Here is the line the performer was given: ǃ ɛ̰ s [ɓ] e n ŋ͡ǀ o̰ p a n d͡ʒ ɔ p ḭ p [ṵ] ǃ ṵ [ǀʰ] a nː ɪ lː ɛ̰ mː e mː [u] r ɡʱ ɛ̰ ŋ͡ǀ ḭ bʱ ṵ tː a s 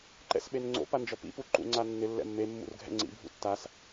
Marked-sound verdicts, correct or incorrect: correct, incorrect: u, incorrect: ŋ͡ǀ, incorrect: ṵ

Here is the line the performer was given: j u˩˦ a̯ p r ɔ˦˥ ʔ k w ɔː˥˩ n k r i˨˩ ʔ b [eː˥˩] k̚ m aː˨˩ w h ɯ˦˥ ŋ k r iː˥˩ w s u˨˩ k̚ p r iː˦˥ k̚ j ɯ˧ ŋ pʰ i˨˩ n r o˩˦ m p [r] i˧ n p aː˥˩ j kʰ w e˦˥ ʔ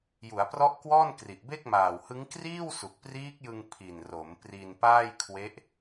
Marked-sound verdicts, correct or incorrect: incorrect: e˥˩, correct

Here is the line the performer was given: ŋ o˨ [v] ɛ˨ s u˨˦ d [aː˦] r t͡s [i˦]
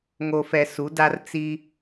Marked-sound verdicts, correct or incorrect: incorrect: f, incorrect: a˦, correct

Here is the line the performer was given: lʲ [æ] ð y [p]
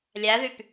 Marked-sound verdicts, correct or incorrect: correct, correct

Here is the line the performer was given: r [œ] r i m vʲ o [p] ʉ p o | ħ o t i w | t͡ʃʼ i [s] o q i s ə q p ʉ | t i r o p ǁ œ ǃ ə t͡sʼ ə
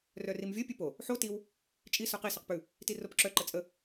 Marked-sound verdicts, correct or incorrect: correct, incorrect: pʲ, correct

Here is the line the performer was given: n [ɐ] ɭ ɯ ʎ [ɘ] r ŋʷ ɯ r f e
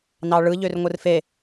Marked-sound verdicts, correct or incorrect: incorrect: ɑ, incorrect: ø

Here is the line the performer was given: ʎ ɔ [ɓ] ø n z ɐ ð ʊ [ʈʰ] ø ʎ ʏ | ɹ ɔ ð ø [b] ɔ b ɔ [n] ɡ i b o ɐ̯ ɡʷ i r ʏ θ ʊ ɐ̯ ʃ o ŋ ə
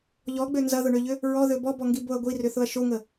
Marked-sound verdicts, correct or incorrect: incorrect: ɡ͡b, incorrect: ɳ, correct, incorrect: ŋ

